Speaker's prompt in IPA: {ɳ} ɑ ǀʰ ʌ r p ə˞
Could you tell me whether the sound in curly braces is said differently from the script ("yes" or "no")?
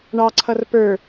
no